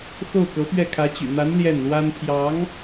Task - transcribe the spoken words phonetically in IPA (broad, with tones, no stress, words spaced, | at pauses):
xo˥˩ʊ̯kɤ˧˥pɥɛ˥˩ kʰä˧˥t͡ɕy̰˨˩n̪a˧˥n ljɛ˥˩nlwa˥n pʰjɑ˧˥ŋ